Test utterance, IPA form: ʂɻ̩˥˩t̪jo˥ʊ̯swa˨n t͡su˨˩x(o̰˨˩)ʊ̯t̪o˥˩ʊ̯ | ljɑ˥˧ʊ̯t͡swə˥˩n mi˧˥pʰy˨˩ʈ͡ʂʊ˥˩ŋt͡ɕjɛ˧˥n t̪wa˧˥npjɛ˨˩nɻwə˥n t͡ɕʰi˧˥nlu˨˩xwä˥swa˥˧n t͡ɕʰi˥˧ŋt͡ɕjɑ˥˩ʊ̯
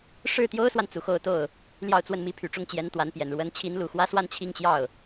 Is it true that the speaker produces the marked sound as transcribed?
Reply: no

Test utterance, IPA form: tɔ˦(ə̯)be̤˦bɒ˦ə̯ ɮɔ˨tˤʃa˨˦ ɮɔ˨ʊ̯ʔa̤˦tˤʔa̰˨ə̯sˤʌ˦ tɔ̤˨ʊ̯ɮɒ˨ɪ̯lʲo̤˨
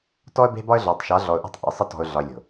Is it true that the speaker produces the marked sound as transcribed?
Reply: yes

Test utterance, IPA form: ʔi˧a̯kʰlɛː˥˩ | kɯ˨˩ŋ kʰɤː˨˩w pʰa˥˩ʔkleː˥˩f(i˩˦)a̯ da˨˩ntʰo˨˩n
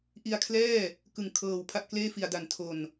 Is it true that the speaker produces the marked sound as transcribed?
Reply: no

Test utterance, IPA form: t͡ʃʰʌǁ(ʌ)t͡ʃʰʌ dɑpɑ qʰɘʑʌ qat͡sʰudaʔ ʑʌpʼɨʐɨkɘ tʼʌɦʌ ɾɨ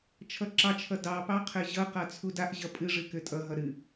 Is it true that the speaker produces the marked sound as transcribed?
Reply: no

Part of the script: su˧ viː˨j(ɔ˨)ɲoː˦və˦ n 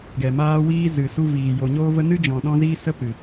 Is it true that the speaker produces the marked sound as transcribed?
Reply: no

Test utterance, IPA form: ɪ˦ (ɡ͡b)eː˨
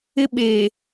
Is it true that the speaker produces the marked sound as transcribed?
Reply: no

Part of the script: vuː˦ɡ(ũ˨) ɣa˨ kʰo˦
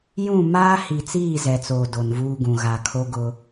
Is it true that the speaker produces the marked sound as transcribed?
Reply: yes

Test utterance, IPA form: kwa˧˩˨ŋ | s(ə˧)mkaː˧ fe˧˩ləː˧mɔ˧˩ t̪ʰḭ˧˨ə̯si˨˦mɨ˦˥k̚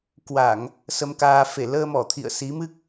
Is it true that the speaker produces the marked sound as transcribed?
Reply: yes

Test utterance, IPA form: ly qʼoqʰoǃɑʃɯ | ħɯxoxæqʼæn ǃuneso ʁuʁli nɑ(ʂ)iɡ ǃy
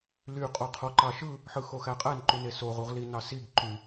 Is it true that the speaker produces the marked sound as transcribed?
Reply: no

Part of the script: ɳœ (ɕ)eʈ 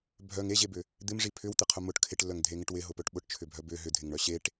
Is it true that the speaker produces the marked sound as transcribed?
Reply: yes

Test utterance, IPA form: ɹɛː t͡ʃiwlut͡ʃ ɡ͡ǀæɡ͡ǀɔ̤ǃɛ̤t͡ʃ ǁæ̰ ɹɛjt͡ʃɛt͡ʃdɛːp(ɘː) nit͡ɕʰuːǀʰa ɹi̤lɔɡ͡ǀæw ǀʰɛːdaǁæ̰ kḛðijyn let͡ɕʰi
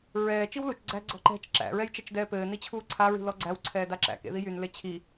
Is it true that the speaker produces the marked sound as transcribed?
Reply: yes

